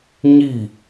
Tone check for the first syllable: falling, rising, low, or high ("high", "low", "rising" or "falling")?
falling